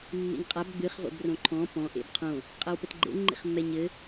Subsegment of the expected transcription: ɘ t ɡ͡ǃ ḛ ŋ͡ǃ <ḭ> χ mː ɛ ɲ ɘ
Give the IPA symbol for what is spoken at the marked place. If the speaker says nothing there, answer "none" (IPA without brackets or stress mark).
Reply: ḭ